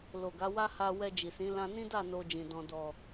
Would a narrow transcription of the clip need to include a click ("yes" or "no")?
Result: no